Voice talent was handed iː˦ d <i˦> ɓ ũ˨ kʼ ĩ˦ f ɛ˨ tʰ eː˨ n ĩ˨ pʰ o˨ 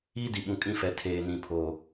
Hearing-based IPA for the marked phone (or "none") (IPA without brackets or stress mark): i˨